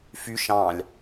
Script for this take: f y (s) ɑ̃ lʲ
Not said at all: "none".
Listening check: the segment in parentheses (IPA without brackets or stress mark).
ʃ